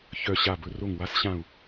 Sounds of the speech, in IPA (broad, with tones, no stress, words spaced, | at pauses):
çœ˧˩ ɕa˧˩ bɵ˧˩ ro˧˩ŋwa˧˥sɕã˧˩u̯